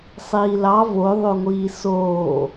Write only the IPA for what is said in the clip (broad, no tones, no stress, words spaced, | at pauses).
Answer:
sˤiːlɑ voðˤoŋʷiː soː